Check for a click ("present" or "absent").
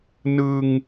absent